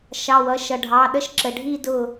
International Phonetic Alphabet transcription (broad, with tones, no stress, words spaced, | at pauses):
ʃɑ˩˧˩wʌ˩˧˩ ʃʌ˩ɖʱɑ˩˧˩ ɗə˥˧ʃǁə˩˧˩ɖʱi˥˧ dʊ˥˩